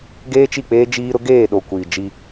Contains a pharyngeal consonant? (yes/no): no